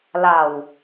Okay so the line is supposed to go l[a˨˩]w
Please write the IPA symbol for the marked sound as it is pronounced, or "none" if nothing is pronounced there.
a˨˩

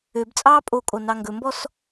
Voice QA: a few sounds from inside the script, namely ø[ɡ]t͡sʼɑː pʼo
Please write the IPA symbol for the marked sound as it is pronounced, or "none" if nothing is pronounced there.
b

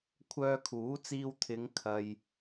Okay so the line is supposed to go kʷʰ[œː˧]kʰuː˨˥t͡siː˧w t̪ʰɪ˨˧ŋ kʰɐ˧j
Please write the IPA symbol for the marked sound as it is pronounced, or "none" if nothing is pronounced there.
œː˧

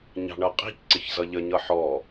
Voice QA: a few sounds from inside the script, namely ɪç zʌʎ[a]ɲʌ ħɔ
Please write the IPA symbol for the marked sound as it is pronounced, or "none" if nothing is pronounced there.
ə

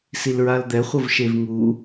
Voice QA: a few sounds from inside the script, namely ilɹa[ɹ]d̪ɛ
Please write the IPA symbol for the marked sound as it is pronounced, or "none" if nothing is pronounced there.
l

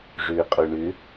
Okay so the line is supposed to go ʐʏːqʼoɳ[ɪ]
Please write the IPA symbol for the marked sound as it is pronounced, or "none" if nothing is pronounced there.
ʏ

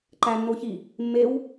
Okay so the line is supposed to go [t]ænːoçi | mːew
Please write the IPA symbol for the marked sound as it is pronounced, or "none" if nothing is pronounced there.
ǃ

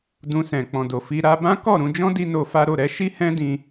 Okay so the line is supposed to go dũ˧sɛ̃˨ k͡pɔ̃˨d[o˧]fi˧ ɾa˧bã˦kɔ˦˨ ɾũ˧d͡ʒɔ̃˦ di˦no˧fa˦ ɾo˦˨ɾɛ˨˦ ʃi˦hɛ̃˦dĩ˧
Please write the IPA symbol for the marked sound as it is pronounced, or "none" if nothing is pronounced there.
o˨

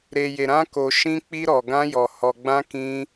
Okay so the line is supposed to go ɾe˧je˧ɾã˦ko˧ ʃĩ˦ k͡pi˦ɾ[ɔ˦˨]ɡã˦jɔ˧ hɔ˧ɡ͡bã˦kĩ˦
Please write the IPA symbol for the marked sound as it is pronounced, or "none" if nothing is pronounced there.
ɔ˧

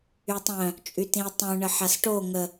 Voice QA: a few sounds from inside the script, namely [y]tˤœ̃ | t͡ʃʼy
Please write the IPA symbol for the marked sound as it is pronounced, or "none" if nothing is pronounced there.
y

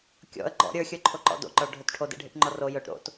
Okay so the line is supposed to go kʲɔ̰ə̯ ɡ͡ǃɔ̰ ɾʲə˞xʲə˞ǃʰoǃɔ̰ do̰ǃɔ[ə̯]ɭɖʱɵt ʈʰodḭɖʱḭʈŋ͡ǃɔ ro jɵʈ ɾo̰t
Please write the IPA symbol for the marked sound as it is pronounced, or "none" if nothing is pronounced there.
none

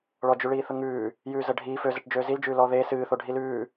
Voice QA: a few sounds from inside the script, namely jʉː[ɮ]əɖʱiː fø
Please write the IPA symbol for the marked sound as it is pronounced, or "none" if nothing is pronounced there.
z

